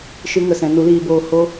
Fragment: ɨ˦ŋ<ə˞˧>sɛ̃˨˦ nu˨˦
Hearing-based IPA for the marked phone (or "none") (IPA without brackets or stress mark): ə˧